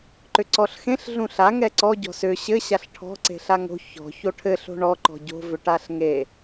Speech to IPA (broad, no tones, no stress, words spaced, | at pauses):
ǃʏǀɔɬxẽɬ ɮũɬa ŋɛǀɔ ɟɔ̤sʏ ɕɘ ɕaɬʈʰɔ̤ ǀe̤ɬaŋo̤ çɔ̤ çoʈʰɘɬo̤ ɳɔǃɔ̤ ɟo̤vʏʈaɬ ŋe